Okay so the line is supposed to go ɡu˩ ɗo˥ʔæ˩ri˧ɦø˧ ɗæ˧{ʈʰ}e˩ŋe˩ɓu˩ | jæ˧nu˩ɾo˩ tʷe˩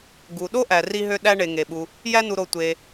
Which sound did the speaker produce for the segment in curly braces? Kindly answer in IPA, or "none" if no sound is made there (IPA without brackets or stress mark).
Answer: ɳ